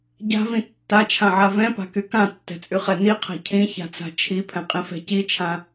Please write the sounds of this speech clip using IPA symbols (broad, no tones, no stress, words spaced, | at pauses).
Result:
ɟa̤vĩ tːat͡ʃʰãʕa vɛ̃pa̤ky kãtːɛ̤t͡sʼyχɛ niqʰa̤ cʰĩça̤t͡sa̤ t͡ʃʰipʰɛ̃qʼĩfɛ̤ cit͡ʃʰã